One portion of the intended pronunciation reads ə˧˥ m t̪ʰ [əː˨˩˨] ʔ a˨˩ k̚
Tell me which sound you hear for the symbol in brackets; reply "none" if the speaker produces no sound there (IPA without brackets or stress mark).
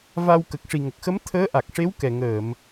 əː˧˥